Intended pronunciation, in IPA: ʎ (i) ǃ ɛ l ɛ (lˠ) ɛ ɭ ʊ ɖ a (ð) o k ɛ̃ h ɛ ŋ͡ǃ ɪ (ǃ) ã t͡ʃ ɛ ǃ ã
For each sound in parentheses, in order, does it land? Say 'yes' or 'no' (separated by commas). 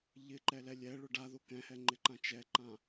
no, no, yes, yes